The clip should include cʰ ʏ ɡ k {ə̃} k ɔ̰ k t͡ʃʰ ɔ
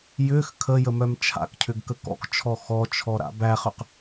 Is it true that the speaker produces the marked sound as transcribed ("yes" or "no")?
no